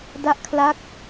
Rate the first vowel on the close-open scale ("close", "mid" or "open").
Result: open